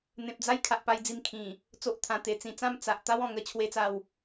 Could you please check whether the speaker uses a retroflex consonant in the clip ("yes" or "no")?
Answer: no